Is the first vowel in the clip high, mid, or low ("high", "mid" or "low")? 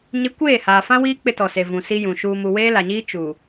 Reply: high